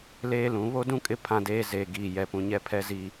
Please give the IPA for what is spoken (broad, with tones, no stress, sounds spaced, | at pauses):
l eː˦ l ũ˨˦ β o˦ d ũ˦ kʼ ɪ˦ pʰ ã˦ d eː˦ z eː˨ ɡ iː˨ j ɛ˨ p ũ˨ ɲ ɛ˦ pʰ ɛ˦ z i˦